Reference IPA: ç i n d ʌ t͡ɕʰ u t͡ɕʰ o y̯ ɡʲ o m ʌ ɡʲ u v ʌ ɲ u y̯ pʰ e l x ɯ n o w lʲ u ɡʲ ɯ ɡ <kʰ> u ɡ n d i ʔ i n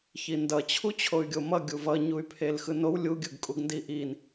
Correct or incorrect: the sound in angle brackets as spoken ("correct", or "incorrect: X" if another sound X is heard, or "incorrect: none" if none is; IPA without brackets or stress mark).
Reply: incorrect: kʼ